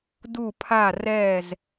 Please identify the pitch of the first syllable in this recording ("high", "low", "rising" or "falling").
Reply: falling